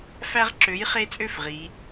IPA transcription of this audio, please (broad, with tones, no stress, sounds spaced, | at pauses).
f æ˦ ʁ ǁ ø˨˥ j χ e˦ t͡sʼ ø˦ f ʁ i˨˥